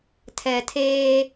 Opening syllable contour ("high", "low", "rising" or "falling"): low